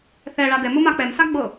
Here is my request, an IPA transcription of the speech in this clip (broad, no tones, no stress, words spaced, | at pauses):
θɛ ɭadɛmʊ mak͡pɛmsa ɡ͡bɤ